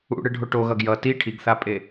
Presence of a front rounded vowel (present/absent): absent